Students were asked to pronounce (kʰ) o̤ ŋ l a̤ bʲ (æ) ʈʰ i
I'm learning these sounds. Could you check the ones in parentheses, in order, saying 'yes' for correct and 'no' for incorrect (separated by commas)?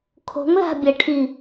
yes, no